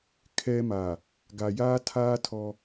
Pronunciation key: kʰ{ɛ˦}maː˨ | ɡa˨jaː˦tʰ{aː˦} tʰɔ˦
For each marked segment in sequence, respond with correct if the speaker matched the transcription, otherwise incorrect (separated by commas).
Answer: correct, correct